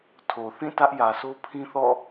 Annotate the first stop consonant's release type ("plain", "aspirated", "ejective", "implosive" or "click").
aspirated